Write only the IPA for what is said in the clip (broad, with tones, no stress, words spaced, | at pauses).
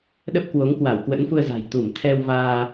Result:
ɗə˦˥p̚kwo˨˦ŋkwa˧˩w kwə̰˧˥nfu˧ə̯za̤˨˩j t̪u˧˩m t̪ʰɛ˧wvaː˧